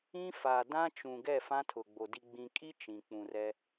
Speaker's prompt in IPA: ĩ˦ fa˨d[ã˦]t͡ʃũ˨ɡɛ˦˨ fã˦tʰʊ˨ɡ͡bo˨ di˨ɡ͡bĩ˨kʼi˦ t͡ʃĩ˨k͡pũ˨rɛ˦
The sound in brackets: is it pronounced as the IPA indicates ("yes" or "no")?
yes